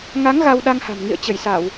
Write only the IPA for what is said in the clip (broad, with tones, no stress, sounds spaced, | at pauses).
ŋ a˨˦ ŋ ɣ a˧ w ɗ a˧ ŋ h a̤˨˩ m ŋ ḭ˧˨ ə̯ t͡ɕ ə˧˩ j s a˧˩˨ w